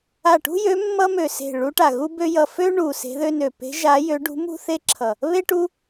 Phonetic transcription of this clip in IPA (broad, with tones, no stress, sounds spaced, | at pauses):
a˧˩ ʈ ṳ˥ j ø˧˥ mː ʌ˥ m ø˧˩ s e̤˧˩ ɭ u˧˥ ʈ a˧˩ ɣ u˥ b ø˥ j ʌ˧˩ f ø˥ ɳ u˧˩ s e̤˧˥ ð ø˥ n ø˧˩ p e̤˧˥ ʒ a˧˥ j ø˧˥ ɖ ṳ˧˥ m ṳ˥ θ e˥ ǁʰ ʌ˧˩ | β e˥ ʈ u˥